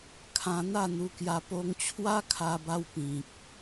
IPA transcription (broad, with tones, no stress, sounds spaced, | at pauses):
kʰ ã˧ n̪ a˥˧ n̪ u˧ k j a˧ p o˧ ŋ t͡ɕʰ w a˦ kʰ a˧ b a˧ w p ĩ˨ k̚